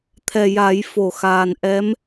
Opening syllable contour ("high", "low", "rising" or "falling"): low